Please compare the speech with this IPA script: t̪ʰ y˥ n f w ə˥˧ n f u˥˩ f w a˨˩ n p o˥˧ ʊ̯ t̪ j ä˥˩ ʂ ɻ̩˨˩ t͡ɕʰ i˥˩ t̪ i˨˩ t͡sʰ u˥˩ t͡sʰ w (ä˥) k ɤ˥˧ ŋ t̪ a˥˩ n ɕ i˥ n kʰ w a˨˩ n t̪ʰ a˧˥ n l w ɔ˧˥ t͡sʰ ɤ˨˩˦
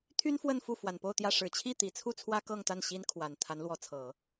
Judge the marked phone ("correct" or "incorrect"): correct